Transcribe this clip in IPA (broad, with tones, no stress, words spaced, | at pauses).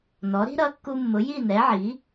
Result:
nɔ˩˥ɾi̤˥ ɾʌ˩˥kːu˧mːʊ˩˥ ji˥˩ nɛ˩˥ʕi˩˥